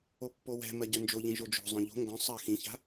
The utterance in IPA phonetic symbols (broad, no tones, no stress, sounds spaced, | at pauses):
o pː o w ɛ̤ m ɜ ɟ œ n d͡ʒ o ʎ ĩ ʒ o d͡ʒ o̤ zˤ œ̃ ʎ o̤ ŋ ɡ œ̃ sˤ ɜ x ĩ ç a̤